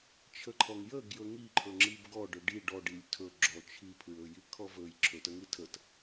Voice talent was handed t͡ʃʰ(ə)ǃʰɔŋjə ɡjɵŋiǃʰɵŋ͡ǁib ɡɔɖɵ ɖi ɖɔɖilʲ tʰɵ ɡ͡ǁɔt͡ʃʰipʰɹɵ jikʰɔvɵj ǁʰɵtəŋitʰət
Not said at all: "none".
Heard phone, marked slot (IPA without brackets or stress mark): ə